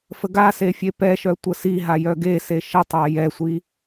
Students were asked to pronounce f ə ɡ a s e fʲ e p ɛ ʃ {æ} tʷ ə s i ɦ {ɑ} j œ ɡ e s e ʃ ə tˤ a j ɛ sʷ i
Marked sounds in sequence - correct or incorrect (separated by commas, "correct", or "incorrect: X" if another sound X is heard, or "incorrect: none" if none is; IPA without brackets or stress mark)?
incorrect: œ, incorrect: a